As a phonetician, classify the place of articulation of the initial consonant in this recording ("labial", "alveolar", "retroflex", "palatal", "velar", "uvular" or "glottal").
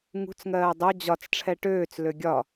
velar